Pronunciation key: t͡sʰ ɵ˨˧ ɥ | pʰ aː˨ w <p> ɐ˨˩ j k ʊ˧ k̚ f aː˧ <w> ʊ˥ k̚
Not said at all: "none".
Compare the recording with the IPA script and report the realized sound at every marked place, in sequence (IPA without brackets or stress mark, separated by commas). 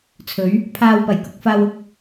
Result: p, w